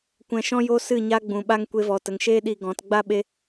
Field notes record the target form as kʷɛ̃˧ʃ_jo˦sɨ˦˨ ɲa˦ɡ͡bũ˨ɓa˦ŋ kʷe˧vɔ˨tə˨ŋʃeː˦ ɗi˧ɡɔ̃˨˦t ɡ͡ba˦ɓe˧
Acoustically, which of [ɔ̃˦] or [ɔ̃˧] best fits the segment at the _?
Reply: ɔ̃˦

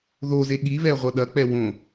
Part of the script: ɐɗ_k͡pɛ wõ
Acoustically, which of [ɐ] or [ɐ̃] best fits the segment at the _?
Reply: ɐ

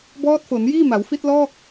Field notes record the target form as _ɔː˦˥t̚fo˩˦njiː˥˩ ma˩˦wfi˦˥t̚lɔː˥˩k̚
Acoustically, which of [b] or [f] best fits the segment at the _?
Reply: b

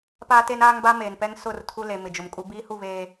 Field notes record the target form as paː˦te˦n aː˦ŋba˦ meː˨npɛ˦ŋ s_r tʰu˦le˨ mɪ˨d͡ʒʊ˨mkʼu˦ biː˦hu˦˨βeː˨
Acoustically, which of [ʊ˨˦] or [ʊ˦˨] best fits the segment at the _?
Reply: ʊ˦˨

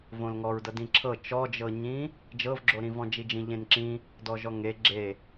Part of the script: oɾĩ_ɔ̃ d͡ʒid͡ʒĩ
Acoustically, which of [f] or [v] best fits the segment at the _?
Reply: v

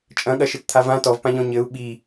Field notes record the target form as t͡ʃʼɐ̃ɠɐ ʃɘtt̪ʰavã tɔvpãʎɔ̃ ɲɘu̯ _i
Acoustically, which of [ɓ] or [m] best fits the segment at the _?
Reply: ɓ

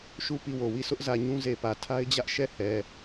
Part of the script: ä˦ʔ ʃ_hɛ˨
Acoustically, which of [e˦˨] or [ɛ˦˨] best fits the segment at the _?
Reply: ɛ˦˨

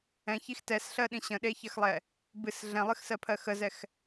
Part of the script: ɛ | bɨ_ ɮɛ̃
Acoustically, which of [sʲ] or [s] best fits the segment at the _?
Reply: s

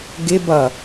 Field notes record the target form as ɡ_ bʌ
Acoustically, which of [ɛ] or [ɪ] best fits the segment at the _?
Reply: ɪ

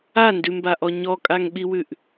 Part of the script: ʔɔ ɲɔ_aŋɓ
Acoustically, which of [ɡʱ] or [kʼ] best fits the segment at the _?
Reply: kʼ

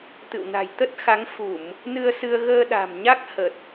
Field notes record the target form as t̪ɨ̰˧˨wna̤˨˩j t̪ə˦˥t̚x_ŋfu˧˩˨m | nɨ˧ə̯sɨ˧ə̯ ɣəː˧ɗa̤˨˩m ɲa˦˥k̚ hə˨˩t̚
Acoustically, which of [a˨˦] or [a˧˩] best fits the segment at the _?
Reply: a˨˦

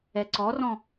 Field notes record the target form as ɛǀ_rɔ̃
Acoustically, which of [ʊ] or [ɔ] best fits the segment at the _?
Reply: ɔ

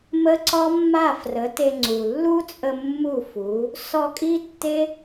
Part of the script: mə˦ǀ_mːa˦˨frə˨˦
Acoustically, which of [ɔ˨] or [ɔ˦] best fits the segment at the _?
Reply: ɔ˦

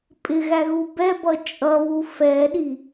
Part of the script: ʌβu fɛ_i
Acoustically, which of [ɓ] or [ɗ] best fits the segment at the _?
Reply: ɗ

